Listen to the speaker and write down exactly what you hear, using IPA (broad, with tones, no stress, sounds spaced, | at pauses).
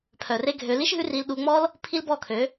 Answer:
pʰ œ˨ r e˦ ɡʱ ø˧ l i˦ ʃ ɦ ʉ˦ r i˧ l ɗ u˧ ŋ͡m ɔ˦ l | pʰ i˦ l b ɔ˦˨ kʰ ø˨˦